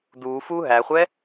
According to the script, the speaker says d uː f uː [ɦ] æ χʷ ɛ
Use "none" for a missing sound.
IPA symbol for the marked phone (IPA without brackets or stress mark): ɦ